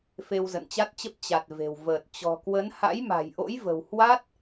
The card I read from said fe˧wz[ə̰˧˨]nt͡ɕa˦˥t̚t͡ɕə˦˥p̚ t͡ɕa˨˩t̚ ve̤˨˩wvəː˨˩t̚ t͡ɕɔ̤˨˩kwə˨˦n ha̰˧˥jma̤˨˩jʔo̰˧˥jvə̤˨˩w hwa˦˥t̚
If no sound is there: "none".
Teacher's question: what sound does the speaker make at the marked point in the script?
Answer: ə̰˧˨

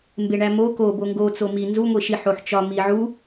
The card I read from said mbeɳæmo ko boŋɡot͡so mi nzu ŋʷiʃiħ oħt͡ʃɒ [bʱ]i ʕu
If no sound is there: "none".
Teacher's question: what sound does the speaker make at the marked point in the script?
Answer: m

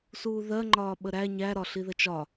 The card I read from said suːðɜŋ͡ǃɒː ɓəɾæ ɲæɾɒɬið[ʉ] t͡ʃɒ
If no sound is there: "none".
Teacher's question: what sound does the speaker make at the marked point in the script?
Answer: ə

